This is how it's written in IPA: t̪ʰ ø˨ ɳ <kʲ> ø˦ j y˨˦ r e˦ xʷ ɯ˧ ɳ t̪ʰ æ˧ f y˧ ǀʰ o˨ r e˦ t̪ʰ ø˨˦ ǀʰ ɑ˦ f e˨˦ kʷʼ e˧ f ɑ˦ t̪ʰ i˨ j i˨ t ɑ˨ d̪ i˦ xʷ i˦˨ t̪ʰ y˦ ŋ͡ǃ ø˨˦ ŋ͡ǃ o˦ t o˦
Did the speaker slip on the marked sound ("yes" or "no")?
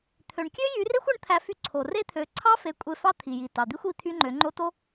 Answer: no